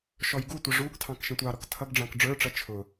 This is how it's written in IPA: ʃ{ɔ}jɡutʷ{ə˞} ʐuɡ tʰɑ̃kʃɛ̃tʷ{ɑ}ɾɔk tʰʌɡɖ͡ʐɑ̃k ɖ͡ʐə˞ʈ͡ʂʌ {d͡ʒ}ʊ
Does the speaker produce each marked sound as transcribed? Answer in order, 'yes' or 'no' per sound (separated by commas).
yes, no, yes, no